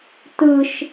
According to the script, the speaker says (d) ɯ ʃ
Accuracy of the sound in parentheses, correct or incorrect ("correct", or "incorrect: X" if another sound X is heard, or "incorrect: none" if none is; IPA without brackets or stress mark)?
incorrect: t